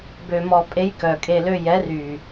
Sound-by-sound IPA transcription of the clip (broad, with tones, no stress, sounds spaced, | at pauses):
b ø˧ m ɔ˧ pʼ e˦ j k œ˨ kʼ e˧ l ø˧ j ɛ˨˦ r y˨